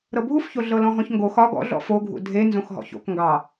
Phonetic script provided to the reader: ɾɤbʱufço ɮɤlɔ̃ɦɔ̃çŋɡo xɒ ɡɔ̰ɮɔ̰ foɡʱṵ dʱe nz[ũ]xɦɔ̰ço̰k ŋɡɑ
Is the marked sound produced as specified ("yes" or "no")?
no